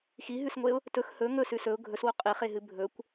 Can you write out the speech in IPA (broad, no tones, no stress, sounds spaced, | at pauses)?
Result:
x i ɦ ʉ s ŋʷ e ʊ̯ | t ɵ x h ɵ ŋ ɵ s ʉ s ɵ ʊ̯ ɡʱ ɵ s w o qʼ e χ e ɦ ɨ bʱ ɵ kʷ